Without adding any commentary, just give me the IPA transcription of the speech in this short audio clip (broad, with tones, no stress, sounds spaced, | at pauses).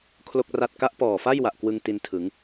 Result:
kʰ l o˥˩ k̚ r a˥˩ t̚ k a˦˥ ʔ p ɔː˨˩ f a˥˩ j w a˨˩ ʔ k w ɯ˧ ŋ t i˧ n tʰ ɯ˩˦ ŋ